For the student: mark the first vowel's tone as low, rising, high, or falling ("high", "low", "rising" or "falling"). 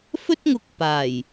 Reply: high